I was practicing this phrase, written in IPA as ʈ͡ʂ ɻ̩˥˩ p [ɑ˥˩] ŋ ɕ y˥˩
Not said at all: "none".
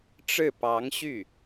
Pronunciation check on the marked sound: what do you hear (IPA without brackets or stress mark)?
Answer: ɑ˧˥